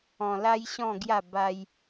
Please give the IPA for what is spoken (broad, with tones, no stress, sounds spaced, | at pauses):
ɔ̃˧ l a˦ j ɕ ɔ̃˥˧ ɡ j a˥˧ b a˦ j